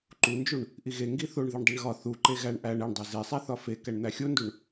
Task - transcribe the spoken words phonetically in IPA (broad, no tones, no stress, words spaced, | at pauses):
ǃund͡ʒuɳ | ʔiɣe ŋɡiθoɳ ðiɳdˤeɳɣɒ θu ǃeɣæɳ ʔæɳ eɳdˤe zesˤæθɒ fe kæɳn̪æxʲonduɳ